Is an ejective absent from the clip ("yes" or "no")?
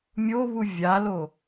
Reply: yes